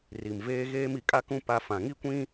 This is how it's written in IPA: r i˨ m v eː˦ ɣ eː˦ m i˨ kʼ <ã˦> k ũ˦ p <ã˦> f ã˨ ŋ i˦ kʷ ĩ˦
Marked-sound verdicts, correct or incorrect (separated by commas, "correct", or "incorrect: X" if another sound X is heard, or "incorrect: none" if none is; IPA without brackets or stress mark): incorrect: a˦, incorrect: a˦